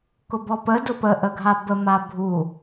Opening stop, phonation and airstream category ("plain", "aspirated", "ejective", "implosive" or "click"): plain